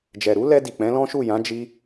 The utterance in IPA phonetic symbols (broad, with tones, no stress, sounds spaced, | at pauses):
d͡ʒ ɛ˨ ɾ u˨˦ l ɛ˧ d i˨ k͡p ɛ̃˨˦ l ɔ̃˦ ʃ u˦˨ j ã˨˦ d͡ʒ i˧